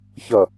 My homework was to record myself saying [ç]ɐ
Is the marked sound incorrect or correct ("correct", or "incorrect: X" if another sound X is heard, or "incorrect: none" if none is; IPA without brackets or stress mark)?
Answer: correct